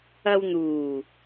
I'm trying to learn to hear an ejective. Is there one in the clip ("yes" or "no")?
no